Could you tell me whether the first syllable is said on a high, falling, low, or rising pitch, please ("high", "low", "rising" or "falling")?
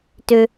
low